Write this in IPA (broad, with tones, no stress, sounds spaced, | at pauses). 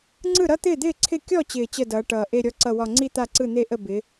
ŋ͡ǀ ɯ˥˩ ɾ ʌ˥˧ t̪ ɪː˥˩ d̪ ɪː˥˩ ǀʰ ɪ˥˩ kʲ ɔ˥˩ t͡ɕ ɪː˨˩ t͡ɕ ə˥˩ d ʌː˨˦ ʈ ʌː˨˩ ʔ e˥˧ ɾʲ ɔ˥˩ ǀ ʌ˥˩ w ɒ˥˧ ŋ͡ǀ i˥˧ t̪ a˥˩ ǀ ɯ˥˩ n̪ e˥˧ ʔ ə˥˩ b ɪ˨˦